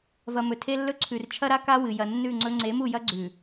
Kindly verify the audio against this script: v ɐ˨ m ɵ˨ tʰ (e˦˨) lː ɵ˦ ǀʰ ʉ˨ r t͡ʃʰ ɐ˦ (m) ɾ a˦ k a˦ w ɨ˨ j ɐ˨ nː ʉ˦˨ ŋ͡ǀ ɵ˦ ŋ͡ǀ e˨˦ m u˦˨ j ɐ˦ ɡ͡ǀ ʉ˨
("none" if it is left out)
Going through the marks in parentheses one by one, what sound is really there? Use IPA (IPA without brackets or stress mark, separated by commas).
e˦, none